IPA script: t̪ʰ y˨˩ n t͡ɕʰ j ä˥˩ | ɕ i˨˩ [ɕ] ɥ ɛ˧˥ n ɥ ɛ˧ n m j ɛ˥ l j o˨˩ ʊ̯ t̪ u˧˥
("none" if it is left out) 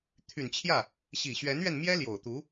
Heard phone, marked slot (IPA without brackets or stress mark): ɕ